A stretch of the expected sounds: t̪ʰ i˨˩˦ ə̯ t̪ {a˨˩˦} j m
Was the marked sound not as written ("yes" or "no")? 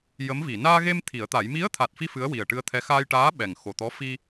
no